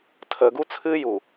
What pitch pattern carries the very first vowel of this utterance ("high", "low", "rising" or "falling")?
low